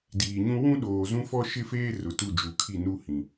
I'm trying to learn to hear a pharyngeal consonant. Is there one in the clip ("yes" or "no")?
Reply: no